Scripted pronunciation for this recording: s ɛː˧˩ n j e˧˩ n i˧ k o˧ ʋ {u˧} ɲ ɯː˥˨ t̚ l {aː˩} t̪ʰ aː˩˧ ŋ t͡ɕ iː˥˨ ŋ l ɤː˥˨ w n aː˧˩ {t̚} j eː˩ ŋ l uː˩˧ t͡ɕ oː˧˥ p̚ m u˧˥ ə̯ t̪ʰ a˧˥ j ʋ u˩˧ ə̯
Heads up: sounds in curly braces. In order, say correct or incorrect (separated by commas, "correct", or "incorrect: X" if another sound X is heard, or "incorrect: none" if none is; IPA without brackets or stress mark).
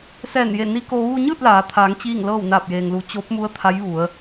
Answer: correct, incorrect: aː˩˧, incorrect: p̚